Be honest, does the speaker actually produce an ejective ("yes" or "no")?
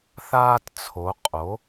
yes